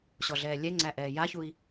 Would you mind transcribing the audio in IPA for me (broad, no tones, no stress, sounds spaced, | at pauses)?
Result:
ɕ ɔ ɮ ɛː lʲ ɛ ŋ͡ǀ æ ʔ ɛː j a ç u i̯